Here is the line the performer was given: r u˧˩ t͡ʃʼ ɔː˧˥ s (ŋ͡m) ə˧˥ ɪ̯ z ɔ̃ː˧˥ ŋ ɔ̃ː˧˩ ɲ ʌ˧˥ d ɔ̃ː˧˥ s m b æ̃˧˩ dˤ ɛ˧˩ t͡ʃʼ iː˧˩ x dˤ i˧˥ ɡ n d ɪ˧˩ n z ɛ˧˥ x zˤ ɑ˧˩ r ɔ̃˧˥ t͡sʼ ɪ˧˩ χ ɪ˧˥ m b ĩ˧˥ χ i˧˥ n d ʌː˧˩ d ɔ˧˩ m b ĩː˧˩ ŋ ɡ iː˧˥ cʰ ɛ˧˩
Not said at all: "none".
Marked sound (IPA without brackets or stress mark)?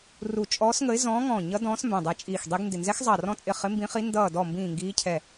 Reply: ŋ